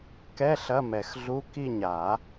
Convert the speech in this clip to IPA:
kɛ˧˥˧ ɬɐ˧˥˧mɛ˨˩˦xɮu˧˥˧ ki˦˨ɲa˨˩˦

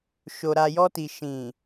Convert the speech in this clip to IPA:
ʃo˨ɾa˨jɔ˧ti˨ ʃĩ˨

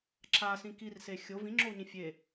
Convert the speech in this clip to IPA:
ǁʰasĩ kirse xʲo vĩŋ͡ǁou̯ɲĩ fʲe

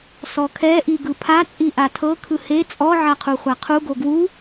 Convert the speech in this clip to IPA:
sɔkʰɛ ʔiɡɯpʰa t͡sʼiʔatʰɤ kʰɯhe t͡sʼɔ ʕaqʰuχʷaqʰu ɡoɡwu

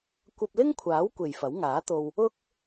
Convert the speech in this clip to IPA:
kʷɐ˧p̚lɪ˥ŋkʷʰaː˨˥w kʷe˨jfɐ˨˥wŋaː˨˥t̪o˧w | ʊ˥k̚

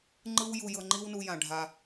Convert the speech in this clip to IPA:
ŋ͡ǃɯ˦w ju˧jɤ˧ŋ͡ǃi˦w nu˧jã˨ ɖʱa˧

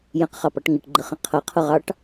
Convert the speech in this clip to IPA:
jə̃qχɑpɑʈ ŋɪʈɡ͡ǃəχə̃ qʰʌqʰʊʁɑʈ

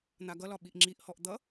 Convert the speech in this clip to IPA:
n̪aɡʌlɒ ɓiʔŋ͡ǁiʔhɔʔ d̪ʌ

